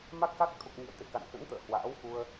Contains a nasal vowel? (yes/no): no